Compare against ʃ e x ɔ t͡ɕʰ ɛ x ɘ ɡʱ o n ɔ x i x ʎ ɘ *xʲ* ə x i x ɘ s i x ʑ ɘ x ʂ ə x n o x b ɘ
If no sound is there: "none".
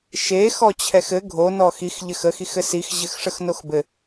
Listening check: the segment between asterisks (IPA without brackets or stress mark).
x